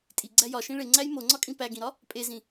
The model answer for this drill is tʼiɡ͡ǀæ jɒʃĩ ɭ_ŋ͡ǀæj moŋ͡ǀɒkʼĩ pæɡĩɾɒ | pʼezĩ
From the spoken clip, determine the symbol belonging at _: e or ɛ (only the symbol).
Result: e